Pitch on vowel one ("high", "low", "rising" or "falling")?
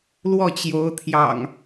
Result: falling